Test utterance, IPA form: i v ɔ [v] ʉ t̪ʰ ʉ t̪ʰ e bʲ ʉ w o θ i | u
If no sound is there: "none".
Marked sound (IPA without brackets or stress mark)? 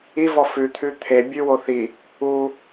f